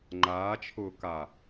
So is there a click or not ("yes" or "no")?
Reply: yes